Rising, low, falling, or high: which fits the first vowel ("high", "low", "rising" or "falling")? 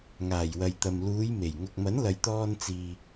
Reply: low